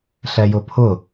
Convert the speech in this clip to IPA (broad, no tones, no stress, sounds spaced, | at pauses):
ɬ ɛ j ʊ pʰ ʊ